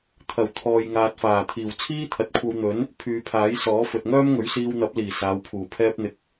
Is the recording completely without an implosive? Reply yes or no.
yes